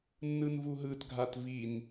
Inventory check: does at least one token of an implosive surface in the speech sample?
no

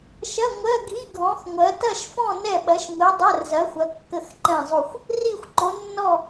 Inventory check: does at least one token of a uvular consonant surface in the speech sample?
no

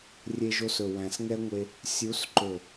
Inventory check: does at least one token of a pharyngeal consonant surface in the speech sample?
no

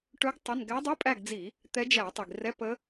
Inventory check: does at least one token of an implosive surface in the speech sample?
no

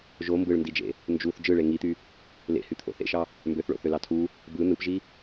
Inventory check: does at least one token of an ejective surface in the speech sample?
no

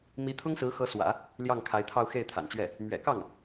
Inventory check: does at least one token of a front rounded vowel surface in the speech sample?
no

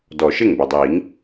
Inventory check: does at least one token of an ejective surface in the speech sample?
no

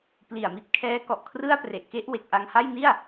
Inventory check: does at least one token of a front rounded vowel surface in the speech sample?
no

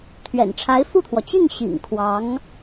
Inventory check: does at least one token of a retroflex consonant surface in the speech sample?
yes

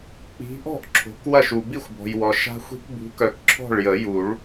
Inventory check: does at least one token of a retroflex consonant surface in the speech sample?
yes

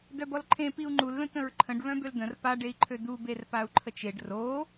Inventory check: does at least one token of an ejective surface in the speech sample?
no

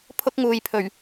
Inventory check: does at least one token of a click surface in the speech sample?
no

